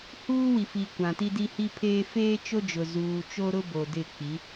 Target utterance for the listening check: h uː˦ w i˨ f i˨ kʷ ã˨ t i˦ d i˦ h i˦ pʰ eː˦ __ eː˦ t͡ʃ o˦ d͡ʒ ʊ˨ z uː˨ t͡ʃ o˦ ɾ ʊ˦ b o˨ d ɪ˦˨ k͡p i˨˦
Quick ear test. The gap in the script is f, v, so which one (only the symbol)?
f